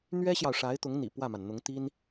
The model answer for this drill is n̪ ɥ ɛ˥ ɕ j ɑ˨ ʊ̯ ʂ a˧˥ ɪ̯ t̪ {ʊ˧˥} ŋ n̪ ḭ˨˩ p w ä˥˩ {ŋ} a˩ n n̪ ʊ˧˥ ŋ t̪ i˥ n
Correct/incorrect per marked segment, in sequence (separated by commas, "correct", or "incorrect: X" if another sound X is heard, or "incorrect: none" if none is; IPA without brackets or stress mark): correct, incorrect: m